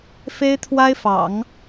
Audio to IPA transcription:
fe˥ɪ̯t̪ʰwa˥ɪ̯fɑ̰˨˩˦ŋ

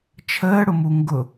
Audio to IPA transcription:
t͡ʃʰəːɽʊmu ŋɡʊ

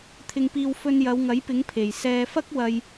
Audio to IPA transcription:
t̪ʰɪ˧ŋpiː˧w fɵ˧njɐ˨˧wŋɐ˨˥jpɪ˨˥ŋ pʰe˨˩j sɛː˧ fɐ˥k̚wɐ˨j

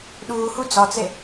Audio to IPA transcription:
ɗuːhu d͡zɒt͡se

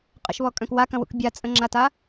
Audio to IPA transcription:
qʼə̰ʃβɔkʼœ̃k wakɐ̃wṵk bʲat͡sʼə̃ŋ͡ǁata

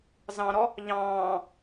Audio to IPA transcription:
zɑ̃ɾɔ | ʎɑ̃ː

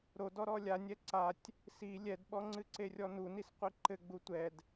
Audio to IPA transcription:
ɾo dɔɾɔlʲanʲɛ ǀatʲ | si lʲɛdɓɔŋ͡ǀɨ ǀerʲɔnunis qʷiǃɘɡ͡bu tʷɛd

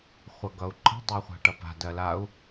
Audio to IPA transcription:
χʷʌɡʌu̯ǃə̤ dˤɜχʷa̤ʈʌpa̤ dɜlau̯

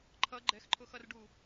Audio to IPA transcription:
ǃʰʌ ɡ͡ǃɛxǃʰʊxʌrɖu

